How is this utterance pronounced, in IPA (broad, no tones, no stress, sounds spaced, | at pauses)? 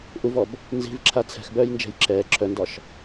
ʔ u v ɔ b | n z i̤ v ǁʰ a t͡sʰ ɛ̤ x b œː j n d͡ʒ ɛ̤ j ǁʰ ɛː ǁʰ œ n d ɒ ʃ